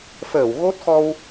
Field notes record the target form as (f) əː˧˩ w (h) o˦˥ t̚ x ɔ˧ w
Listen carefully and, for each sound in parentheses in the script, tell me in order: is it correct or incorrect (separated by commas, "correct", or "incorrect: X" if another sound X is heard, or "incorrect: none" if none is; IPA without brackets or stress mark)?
correct, incorrect: ɣ